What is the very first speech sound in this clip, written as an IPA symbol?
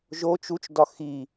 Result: ʒ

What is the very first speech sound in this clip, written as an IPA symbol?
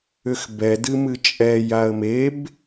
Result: ʏ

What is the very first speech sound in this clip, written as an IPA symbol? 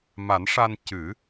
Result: m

